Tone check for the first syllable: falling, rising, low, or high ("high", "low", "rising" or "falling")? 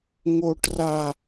high